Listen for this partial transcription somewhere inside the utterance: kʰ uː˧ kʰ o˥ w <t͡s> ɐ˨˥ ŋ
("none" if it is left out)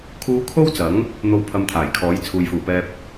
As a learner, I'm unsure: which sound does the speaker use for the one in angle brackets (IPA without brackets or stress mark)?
t͡s